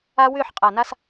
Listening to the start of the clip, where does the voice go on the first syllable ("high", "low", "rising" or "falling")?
high